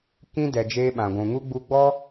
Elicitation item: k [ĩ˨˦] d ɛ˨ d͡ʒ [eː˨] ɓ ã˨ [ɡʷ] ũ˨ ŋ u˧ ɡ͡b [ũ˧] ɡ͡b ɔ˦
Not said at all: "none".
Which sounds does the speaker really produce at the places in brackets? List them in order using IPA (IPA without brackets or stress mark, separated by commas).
ĩ˧, eː˧, ɡʷ, u˧